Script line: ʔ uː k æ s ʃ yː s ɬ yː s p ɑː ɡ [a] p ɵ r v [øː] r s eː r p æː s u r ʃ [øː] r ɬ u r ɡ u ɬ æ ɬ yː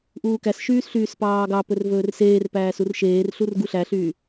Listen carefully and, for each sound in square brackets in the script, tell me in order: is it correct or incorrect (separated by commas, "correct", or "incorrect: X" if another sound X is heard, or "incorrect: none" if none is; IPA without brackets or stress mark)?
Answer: incorrect: ɑ, incorrect: ɵː, incorrect: eː